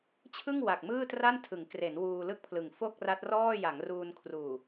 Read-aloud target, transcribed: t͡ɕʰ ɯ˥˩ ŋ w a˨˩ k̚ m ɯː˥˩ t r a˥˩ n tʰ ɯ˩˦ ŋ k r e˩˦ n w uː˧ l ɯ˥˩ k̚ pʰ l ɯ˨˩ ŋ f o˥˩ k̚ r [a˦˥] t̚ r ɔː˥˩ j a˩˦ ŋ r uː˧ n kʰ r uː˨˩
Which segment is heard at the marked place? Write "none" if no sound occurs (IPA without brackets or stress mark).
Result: a˦˥